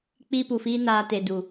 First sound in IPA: k͡p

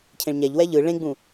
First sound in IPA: cʰ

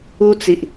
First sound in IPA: u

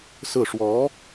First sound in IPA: s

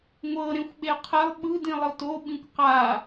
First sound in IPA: ŋʷ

